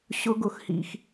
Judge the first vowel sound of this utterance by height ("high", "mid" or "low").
high